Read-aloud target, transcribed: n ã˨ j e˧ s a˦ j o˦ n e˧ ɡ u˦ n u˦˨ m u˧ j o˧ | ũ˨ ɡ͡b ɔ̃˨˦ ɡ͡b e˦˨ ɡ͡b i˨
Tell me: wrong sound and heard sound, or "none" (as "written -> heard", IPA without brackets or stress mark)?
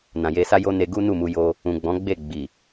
none